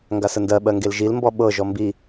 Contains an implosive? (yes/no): yes